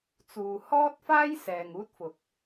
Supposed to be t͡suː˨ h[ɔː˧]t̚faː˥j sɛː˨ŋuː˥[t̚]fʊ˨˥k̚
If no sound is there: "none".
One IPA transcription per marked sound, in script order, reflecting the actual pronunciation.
ɔː˥, t̚

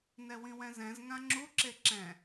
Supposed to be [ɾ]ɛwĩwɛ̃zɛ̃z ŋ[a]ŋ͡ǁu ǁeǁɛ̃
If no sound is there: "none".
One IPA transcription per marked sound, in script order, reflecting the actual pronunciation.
n, ã

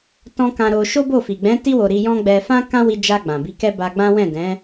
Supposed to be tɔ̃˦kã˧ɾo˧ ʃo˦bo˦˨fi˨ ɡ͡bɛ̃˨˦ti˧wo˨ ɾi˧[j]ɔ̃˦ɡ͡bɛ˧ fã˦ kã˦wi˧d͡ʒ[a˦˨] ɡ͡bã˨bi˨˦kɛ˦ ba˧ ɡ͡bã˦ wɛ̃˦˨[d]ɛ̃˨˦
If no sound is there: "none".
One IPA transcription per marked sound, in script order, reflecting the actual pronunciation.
j, a˧, d

